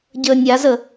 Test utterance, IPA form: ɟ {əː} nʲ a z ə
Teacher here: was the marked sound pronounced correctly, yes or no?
yes